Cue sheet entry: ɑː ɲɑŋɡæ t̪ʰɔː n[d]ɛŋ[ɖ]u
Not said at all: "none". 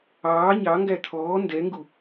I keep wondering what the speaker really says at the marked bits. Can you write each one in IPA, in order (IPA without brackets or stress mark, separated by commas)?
d, ɡ